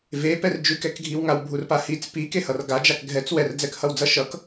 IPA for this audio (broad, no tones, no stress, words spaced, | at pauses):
vepɛr d͡ʒʉkɛkɡʱiwŋaw bʱurpahit͡s pikehʌr ɡad͡ʒak ɡʱɛt͡s wɛrd͡zɛkhʌw d͡zʌʃʌk